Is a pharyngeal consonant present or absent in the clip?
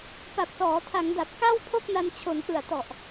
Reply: absent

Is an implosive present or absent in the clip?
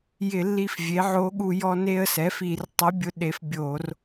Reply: present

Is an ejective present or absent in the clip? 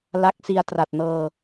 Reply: absent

